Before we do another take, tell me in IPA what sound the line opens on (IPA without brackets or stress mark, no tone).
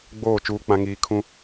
ɡ͡b